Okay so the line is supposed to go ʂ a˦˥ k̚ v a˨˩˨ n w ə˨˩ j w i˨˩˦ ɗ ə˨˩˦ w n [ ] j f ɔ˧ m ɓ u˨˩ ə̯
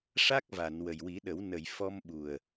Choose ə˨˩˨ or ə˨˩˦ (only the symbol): ə˨˩˨